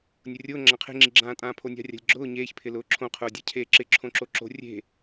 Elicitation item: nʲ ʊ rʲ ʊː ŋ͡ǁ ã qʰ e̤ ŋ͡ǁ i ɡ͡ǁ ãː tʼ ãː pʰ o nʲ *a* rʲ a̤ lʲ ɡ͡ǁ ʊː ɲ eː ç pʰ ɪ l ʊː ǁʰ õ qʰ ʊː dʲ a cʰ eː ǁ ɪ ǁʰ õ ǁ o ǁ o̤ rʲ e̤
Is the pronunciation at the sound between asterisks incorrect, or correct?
incorrect